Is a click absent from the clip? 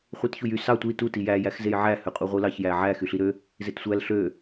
yes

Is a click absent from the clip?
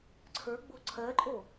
no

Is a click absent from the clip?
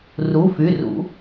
yes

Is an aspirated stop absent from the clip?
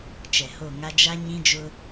yes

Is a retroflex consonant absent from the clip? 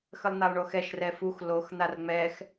no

